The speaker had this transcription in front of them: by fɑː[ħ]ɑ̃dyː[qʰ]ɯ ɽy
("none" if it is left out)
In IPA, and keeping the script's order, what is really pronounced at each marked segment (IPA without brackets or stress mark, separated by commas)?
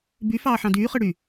ħ, χ